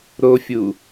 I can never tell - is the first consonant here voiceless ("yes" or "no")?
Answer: no